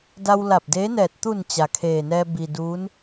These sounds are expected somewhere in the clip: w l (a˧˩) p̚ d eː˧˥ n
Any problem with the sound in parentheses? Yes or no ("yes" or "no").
no